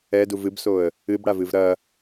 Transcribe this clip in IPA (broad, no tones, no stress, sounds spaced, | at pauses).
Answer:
ɛ d u v ɨ b s o ə̯ | ɨ b ɽ a v ɨ v ɾ ɐ